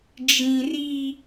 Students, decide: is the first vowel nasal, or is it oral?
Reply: nasal